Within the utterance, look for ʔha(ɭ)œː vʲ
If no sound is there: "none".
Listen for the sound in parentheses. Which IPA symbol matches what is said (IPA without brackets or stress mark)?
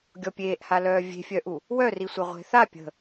l